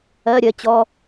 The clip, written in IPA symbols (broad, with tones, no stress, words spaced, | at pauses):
ɜ˧˥˧ɾʲɜ˨˥t͡ɕɔ˧˥˧